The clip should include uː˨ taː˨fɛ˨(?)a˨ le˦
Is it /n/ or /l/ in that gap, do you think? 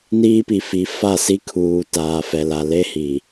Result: l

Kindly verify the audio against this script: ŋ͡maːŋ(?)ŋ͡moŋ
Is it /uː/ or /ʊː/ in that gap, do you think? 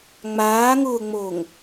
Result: ʊː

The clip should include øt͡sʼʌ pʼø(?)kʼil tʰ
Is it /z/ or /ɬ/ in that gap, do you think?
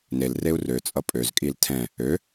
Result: z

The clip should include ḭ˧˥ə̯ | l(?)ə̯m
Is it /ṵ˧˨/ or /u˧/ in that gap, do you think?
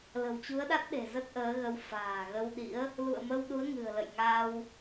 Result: ṵ˧˨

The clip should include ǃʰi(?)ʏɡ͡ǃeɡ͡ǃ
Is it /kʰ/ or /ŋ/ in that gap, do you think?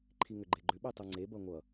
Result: ŋ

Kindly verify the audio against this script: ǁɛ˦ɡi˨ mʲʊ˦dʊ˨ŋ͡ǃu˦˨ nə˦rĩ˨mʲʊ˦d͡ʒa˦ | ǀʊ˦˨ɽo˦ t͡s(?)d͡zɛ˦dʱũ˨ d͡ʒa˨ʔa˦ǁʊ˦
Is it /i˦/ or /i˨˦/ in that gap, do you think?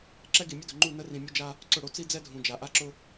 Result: i˦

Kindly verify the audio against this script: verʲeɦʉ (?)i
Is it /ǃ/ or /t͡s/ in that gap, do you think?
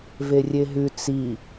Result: t͡s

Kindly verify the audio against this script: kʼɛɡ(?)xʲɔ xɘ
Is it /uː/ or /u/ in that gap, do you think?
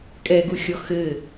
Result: u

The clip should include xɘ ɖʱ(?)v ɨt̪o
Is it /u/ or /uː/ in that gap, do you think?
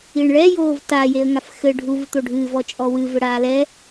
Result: u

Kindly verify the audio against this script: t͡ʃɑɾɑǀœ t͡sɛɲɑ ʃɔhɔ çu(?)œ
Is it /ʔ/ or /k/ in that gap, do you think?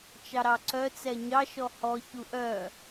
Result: ʔ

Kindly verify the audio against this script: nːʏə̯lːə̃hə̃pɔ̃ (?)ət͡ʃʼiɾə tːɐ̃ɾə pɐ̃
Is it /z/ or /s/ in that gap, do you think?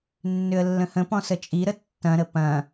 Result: s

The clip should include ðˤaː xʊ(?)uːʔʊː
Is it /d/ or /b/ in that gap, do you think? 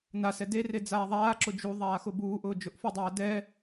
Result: b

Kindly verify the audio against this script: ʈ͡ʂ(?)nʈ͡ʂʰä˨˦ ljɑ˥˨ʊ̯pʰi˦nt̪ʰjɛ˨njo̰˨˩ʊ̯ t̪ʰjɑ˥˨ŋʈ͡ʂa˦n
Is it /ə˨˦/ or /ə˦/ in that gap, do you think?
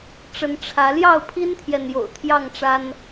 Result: ə˨˦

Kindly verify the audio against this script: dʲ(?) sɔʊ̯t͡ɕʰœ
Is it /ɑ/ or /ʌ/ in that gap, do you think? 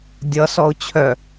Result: ʌ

